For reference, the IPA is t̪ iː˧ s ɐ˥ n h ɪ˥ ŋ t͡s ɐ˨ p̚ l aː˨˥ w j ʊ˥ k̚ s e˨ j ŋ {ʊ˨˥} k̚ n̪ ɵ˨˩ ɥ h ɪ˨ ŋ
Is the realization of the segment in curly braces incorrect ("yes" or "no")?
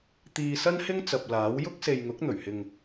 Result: no